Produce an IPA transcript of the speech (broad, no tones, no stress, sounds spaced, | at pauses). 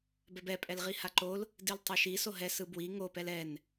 b ɛ b ɛ pʼ ɛ l ʁ i h a ǃ o l | d i l tˤ e ʃ i s o ɦ ɛ s ɯ b w i ŋ o p ɛ l ɛ n